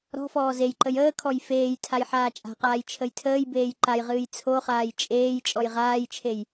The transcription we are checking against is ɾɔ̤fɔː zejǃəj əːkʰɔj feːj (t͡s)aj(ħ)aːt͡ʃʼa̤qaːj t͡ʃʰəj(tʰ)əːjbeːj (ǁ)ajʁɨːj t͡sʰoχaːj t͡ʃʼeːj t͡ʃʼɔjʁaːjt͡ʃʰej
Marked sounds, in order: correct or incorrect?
incorrect, correct, correct, incorrect

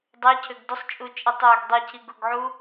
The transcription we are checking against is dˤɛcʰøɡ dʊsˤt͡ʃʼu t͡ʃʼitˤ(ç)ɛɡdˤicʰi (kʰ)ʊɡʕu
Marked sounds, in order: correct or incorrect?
incorrect, incorrect

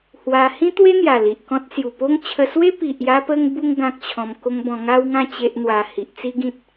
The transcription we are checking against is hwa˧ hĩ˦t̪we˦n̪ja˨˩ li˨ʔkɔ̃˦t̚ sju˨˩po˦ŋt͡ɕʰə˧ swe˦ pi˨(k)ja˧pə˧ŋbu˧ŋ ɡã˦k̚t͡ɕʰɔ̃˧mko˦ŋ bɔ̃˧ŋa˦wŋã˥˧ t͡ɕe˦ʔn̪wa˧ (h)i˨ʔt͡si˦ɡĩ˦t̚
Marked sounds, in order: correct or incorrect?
incorrect, correct

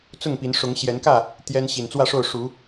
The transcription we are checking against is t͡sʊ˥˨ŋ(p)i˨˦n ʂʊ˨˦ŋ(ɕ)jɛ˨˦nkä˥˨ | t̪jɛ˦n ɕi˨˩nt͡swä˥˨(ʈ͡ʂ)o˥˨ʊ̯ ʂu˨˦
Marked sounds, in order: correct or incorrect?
correct, correct, incorrect

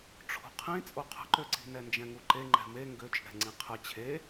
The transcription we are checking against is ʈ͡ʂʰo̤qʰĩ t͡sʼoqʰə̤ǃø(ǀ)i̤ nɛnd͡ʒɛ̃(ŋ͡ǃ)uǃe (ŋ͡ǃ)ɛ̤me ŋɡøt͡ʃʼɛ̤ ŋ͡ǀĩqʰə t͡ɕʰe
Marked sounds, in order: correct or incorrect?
correct, incorrect, correct

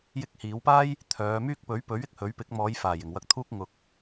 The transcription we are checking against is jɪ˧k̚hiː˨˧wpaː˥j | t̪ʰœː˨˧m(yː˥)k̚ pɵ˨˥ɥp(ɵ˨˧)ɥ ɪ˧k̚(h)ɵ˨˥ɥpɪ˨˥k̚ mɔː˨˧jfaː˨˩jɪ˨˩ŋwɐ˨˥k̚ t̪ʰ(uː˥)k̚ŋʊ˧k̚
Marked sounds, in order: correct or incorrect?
correct, incorrect, correct, correct

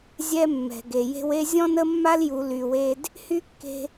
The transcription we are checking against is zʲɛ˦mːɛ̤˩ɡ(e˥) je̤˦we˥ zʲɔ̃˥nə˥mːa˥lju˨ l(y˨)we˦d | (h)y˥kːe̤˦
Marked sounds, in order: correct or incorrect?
incorrect, correct, correct

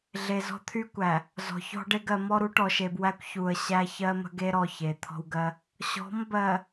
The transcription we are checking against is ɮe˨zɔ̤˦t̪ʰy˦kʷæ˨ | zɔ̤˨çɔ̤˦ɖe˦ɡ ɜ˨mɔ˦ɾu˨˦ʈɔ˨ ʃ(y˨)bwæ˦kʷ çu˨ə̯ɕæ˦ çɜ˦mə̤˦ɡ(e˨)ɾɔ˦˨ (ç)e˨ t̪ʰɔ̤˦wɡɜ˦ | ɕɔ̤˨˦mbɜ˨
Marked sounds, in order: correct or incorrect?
incorrect, incorrect, correct

